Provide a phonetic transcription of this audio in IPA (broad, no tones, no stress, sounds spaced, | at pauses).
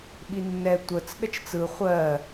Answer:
ɓ i nː ɛ tʷ ə t͡s ɗ ə t͡ʃ t͡s ɯ χʷ ɜ